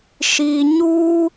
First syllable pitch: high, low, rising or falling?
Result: low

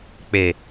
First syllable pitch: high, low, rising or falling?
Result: low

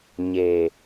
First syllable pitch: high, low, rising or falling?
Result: low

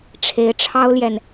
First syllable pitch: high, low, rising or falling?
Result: rising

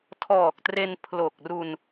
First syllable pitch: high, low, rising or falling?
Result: low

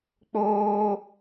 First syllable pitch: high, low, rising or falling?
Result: high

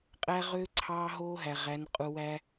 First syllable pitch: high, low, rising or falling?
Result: high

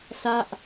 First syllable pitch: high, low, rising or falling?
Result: falling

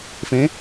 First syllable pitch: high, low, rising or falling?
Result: rising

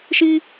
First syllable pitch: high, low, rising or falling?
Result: high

